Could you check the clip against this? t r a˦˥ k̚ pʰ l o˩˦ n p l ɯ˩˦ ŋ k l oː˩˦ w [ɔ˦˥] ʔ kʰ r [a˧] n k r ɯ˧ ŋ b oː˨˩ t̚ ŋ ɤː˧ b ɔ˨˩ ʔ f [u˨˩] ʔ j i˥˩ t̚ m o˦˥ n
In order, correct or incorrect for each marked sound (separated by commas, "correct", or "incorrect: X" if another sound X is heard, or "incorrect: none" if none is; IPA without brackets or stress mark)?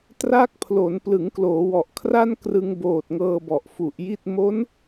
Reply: incorrect: ɔ˨˩, incorrect: a˥˩, correct